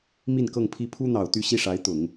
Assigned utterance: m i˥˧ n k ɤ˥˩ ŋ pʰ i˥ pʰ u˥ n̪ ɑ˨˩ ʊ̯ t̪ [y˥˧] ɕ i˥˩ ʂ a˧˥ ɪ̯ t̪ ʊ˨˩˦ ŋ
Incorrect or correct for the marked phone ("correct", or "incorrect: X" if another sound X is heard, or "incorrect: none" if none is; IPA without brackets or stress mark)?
correct